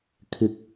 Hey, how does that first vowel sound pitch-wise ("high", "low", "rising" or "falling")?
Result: rising